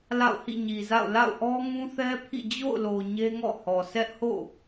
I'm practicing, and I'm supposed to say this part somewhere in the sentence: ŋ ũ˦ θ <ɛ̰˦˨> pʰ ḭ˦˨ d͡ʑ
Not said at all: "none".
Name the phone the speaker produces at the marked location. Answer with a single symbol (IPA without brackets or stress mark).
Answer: ɛ˦